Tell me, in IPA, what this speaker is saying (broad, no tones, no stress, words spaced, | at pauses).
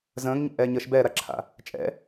zə̃ːŋɲɛ̰ʔɛːɲəːʃ bɛːɾaǁʰa̰ | t͡ʃʼɛ̰